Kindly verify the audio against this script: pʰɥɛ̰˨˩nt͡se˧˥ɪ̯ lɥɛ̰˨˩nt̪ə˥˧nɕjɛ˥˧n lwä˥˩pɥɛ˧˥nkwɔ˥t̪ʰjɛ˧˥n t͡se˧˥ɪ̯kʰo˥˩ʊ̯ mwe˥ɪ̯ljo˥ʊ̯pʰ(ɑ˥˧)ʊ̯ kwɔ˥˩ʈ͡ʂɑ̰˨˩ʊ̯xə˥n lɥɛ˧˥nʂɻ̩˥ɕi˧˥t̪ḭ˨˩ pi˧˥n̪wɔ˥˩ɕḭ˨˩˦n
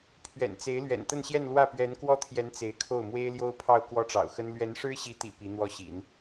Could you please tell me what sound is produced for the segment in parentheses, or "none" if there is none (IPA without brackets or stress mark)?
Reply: ɑ˥˧